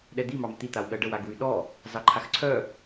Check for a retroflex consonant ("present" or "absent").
present